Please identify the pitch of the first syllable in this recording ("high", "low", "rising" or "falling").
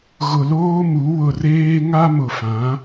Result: low